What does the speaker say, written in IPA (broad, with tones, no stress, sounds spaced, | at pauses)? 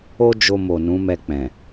o˦ d͡ʒ o˧ m o˨ n ũ˨˦ m ɛ˧ k͡p ɛ̃˨